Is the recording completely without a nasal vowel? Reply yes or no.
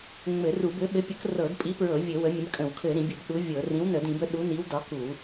no